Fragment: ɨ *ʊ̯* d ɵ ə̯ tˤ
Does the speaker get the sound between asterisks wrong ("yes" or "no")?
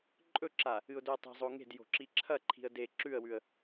no